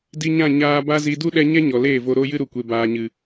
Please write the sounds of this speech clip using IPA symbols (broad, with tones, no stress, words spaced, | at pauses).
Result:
di˧ɲã˦˨ ɲaː˧ba˦zi˧ du˦ɗɛ˧ɲɛ˦ ɲɔ˨leː˦˨vo˧ ɾo˦jɨ˦ɾu˨kʷe˨ baː˨ɲɨ˨